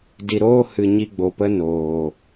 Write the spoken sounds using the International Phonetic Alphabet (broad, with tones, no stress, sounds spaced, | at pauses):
d i˨ ɾ oː˦ h ɨ˧ ɲ i˧ ɡ͡b o˨ p ə˧ n oː˨